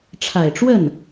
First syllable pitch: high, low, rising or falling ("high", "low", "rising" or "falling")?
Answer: low